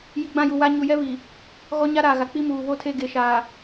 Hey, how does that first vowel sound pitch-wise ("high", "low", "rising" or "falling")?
low